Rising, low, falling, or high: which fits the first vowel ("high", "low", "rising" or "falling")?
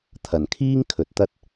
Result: low